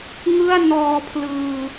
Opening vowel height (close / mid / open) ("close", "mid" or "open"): close